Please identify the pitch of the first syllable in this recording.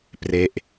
falling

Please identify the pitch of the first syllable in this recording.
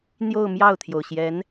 falling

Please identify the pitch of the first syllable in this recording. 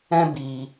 high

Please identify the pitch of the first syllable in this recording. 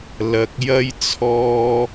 low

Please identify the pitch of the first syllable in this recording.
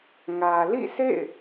low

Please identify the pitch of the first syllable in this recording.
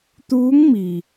rising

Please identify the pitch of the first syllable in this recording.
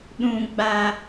high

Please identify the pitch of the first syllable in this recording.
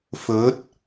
rising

